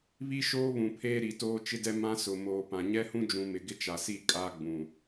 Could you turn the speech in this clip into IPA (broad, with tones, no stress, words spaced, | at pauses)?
βi˦ʃoː˦βũ˨pʰeː˦ ɾi˨toː˦t͡ʃɪ˦dɛ˦ mã˦sʊ˨ moː˨pã˨ ɲɛ˦hũ˦d͡ʒũ˨ mɪ˨ɡɪ˦t͡ʃa˨si˦˨ kʼa˦ ɡ͡bũ˨